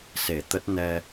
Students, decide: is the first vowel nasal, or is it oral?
oral